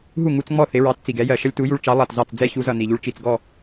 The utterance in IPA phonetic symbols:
ɦ u˥˩ ŋ u˧ t͡s ŋ͡m ɔ˥˩ θ ɪ˩˥ ɹ ɑ˩˥ t t͡s i˩ ɡ ɛ˩˥ j ɜ˩ ʃ ʌ˥ lʲ t u˩˥ j u˧ ɭ t͡ʃ ɑ˩˥ lˠ ɑ˩ t z ɑ˥˩ t͡s d͡z ɛ˥ ç u˩˥ z ʌ˩ n i˩ ʎ u˧ ɭ t͡ʃ i˩ t͡s ɡ ɔ˥˩

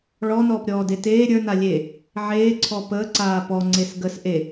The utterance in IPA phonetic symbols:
ɭ ɔ n ɔː p ɾʲ ɔː d e t eː ɾʲ ə˞ n a lʲ e | ʕ eː ǀʰ ɔ p ə ǀ aː p ɔ ŋ͡ǀ e s ɡ ə s ʔ e

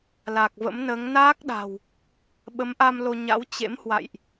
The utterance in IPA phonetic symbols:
l a˨˩ k̚ v ə̰˧˥ m n əː˨˦ ŋ n aː˦˥ k̚ ɗ a̤˨˩ w | ɓ ə˨˦ m ʔ a˧ m l o˧ ɲ a̰˧˥ w t͡ɕ ḛ˧˥ m h w a̰˧˨ j ʔ

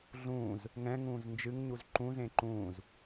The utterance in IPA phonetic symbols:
ɮ ũː z | ŋ ɛ̃ ŋ ũː z n d͡ʒ ɨ ŋ ɲ u z ǃ ũ z ẽ ǃ ũː z

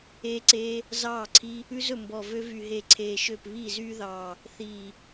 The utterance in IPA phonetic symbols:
eː˦˥ ǀ eː˦˥ | z ɑː˥˩ ǀʰ i˦˥ | ʉ˦˥ z ɵ˧˩ m b ɔ˧˩ v ø˦˥ v y˧˩ ɦ e˧˩ ǀʰ eː˧˩ ʃ ø˥˩ p β iː˥˩ z yː˦˥ ð ɑː˧˩ | θ iː˧˩

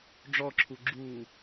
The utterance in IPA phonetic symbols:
ɖ͡ʐ ɔ ǁʰ u ɡ͡ǁ uː

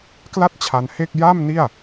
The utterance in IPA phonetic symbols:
k l a˥˩ t̚ t͡ɕʰ a˧ n h e˥˩ k̚ j a˥˩ m n i˥˩ a̯

